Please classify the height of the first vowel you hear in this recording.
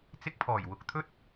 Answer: high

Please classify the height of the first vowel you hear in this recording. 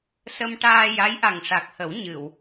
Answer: mid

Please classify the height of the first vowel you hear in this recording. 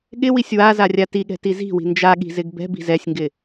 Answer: high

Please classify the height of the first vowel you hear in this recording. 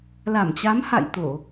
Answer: low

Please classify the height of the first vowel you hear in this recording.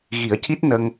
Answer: high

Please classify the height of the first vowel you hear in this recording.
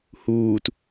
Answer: high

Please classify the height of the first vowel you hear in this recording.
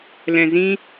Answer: mid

